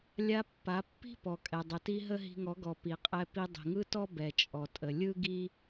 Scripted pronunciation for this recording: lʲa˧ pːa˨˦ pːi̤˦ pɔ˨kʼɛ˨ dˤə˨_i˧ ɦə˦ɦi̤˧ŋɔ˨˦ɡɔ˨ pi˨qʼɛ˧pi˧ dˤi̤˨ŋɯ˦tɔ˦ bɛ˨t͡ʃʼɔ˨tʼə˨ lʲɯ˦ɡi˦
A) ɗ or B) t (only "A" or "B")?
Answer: B